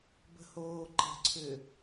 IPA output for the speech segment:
b ə̤ h oː ǃ ə̤ ǀʰ ʏ

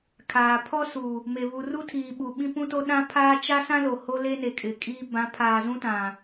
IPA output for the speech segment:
kʰ aː˨ pʰ ɔ˦ s u˨ | m e˨ β u˨ r u˦ tʰ iː˨ ɓ u˨ ɓ ĩ˦ p ũ˦ t o˦ ɗ ã˦ pʰ aː˦ t͡ʃ a˦ s ã˦ l o˨ h o˦ l e˦ n e˨ kʼ ɪ˨ kʼ iː˦ b ã˨˦ pʰ aː˨ z ũ˦ t ã˨

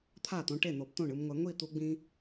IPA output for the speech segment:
t̪ʰ a˥˩ t̪ õ˧ ʈ e˥˩ n̪ o˨˩˦ b t̪ õ˥˩ ɳ ɯ˧ m ŋʷ ɛ˨˩˦ ŋʷ i˥˩ t̪ u˧ ɡ͡b ĩ˧

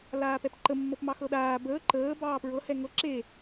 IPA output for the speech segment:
l aː p ɛ p ǃ ə mː ɤ p m ɑ x ɤ ɗ aː b əː ǃ əː b ɑː p ɹ ɤ h ɛ ŋ ɤ ǁ e

